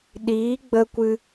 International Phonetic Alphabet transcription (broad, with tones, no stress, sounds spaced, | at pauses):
ɗ iː˨˦ ɡ͡b ə˧ kʷ ɨ˧